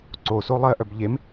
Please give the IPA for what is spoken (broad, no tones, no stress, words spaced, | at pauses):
ǀoso lˠɜʔœb ʎem